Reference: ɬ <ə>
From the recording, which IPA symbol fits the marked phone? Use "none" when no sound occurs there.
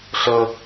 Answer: ə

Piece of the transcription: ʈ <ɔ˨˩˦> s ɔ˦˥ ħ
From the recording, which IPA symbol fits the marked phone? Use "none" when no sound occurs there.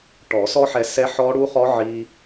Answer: ɔ˨˩˦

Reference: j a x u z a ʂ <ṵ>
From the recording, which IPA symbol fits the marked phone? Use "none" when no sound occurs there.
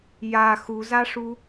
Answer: u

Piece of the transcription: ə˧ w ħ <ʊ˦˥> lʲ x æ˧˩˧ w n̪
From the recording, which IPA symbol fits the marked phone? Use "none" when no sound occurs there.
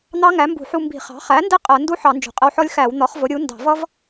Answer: ɔ˦˥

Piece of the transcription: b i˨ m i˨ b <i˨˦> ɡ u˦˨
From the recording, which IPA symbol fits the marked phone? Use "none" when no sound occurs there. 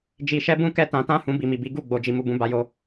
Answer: i˨˦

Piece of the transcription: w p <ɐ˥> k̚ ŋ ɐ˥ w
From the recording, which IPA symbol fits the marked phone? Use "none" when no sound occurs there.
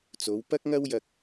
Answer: ɐ˥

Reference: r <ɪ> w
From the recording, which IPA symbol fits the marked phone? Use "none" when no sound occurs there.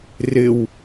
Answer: ɪ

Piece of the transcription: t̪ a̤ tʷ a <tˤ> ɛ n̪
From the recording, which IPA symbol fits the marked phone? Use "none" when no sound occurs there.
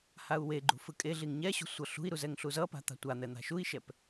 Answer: n̪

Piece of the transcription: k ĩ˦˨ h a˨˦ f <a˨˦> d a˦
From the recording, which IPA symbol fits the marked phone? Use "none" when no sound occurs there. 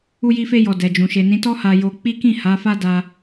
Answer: a˦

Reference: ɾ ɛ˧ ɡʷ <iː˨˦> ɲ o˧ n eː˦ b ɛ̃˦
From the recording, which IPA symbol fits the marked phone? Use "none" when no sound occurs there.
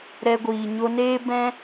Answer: iː˨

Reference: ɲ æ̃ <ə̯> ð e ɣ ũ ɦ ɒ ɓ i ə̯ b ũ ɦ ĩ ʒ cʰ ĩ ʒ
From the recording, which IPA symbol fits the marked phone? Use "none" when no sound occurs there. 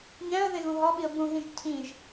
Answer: ə̯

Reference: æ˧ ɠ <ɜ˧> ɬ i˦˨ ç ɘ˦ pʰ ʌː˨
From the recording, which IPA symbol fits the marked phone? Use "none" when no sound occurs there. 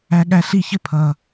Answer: æ˧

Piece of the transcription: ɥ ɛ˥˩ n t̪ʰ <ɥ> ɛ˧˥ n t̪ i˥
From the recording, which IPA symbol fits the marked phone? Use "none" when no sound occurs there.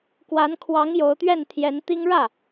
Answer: j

